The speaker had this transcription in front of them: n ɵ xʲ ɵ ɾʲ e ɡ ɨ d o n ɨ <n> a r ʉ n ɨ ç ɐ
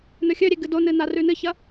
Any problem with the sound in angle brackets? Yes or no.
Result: no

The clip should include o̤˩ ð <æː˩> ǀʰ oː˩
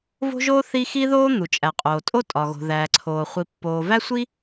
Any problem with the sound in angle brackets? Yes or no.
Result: no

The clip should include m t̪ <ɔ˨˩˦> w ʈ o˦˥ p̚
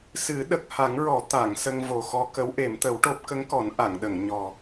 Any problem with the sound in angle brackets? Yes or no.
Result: yes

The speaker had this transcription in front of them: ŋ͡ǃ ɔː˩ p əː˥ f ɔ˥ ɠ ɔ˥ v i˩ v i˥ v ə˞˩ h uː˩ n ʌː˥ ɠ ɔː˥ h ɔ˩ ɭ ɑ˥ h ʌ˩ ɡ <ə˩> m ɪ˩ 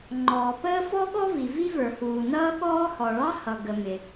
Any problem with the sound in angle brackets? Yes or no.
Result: no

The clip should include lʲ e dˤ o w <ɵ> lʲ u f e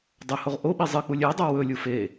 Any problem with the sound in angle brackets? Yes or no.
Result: no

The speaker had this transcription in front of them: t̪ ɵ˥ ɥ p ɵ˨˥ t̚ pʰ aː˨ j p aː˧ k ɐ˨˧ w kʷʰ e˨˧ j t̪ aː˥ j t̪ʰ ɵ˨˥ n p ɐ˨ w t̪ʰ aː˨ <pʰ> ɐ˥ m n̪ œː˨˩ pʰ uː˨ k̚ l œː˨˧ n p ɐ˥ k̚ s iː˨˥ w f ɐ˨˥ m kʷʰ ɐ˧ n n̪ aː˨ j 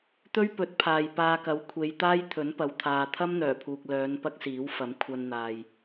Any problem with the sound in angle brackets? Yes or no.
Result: yes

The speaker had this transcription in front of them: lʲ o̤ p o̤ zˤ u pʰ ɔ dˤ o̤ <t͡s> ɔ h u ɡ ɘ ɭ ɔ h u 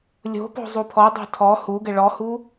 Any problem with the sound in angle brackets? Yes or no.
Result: yes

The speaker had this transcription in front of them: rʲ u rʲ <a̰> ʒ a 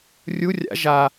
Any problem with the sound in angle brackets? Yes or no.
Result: no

